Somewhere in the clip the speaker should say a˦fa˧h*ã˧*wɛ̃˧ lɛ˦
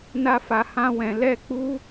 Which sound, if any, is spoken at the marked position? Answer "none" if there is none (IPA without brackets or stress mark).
ã˦